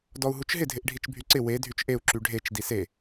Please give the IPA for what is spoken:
dɔu̯ɦut͡ʃɦɪ dʱɪʔɖʱit͡ʃbʱyǀɪ we dʱyt͡ʃʔeu̯ ǁyɖʱet͡ʃ dise

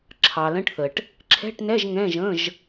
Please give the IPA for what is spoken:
ǁʰɑ˨lə̃˧˥˧ʈθə˨ʈ | ǁʰɛ̤˧˥˧ʈnɛ˧˥˧ʒ ŋɛ̃˧˥˧ʒə̃˧˥˧ʒ

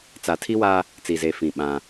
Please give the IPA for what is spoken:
t͡sa˨tʰi˦wa˦ | t͡si˨ze˨fĩ˨ ɓã˦

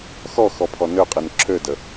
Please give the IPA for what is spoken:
xɔ xɔpʰɔnøqʼin ǁʰødə

